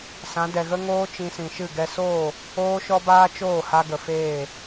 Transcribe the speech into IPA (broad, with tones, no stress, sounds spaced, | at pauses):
s ã˨˦ d ɛ˨ ɣ ə˦ ŋ oː˦ t͡ʃ ĩ˧ s ĩ˨ ʃ ɨ˦˨ ɡ ɛ˧ s oː˦˨ | oː˦ ʃ ɔ˦ b aː˦ t͡ʃ oː˦˨ h a˧ ɡ ə˨ f eː˦˨